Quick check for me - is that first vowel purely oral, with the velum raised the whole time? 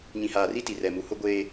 no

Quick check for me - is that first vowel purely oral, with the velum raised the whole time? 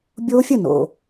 yes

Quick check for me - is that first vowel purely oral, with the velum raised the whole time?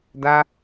yes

